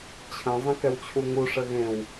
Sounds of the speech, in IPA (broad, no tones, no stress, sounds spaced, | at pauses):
t͡ɕʰ ə̃ zˤ ɛ̃ k ɛ w t͡ɕʰ u ŋ u ʂ ə ɣ ẽ w